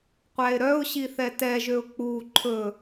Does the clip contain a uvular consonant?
yes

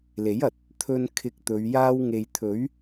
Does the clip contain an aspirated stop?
yes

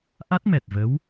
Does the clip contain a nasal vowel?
no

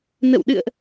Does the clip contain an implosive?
yes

